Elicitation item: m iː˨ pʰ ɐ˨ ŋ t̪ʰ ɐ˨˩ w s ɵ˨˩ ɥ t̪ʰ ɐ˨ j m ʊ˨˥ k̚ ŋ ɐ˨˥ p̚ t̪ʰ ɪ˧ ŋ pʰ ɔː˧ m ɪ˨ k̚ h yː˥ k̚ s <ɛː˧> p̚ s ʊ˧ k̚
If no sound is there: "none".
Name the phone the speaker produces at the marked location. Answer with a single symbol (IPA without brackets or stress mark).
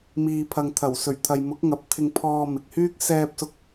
ɛː˧